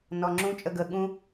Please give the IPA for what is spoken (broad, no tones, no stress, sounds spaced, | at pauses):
n ɔ ŋ͡ǁ ũ t͡ʃʼ ə ɡ ə ɠ ũ